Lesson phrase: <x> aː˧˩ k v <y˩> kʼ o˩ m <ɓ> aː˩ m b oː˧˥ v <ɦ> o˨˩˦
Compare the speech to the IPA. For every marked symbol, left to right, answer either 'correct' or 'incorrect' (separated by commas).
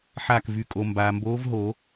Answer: incorrect, correct, incorrect, correct